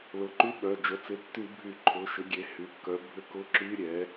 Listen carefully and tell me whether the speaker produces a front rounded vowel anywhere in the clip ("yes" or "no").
yes